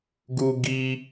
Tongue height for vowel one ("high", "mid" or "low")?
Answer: high